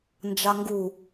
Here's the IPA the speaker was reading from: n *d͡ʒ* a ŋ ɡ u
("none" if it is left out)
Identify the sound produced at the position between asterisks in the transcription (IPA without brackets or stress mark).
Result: d͡ʒ